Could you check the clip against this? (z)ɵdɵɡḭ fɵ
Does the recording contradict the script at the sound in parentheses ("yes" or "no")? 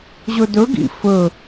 yes